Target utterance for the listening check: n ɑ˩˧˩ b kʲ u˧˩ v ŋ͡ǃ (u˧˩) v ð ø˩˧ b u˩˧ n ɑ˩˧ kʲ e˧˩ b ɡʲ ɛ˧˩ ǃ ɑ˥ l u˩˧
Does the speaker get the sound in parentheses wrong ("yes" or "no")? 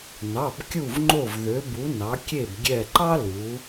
yes